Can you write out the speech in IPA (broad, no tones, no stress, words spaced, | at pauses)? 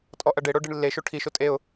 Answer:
tʼɔʔɐɖeɽo ɖiɳlːeʃo ʈʰiʃo tʼeʊ̯